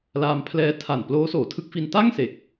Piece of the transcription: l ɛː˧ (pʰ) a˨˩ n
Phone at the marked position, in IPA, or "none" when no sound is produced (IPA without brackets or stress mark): tʰ